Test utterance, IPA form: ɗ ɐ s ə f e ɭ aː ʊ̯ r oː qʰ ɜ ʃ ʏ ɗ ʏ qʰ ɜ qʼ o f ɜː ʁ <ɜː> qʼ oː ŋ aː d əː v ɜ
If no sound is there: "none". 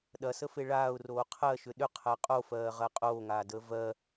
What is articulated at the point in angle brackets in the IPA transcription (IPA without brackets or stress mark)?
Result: ɜ